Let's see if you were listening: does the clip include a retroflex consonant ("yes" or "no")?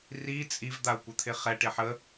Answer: yes